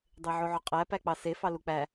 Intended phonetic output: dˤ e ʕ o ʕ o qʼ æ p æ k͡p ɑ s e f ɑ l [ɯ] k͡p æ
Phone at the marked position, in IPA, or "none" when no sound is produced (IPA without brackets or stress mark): u